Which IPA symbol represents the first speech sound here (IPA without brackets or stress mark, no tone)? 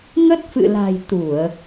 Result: ŋ